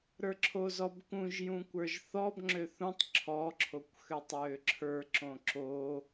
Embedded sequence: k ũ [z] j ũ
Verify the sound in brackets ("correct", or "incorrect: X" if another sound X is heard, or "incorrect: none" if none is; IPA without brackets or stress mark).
incorrect: ʒ